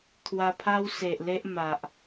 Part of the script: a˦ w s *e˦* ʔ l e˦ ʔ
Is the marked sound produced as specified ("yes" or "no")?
no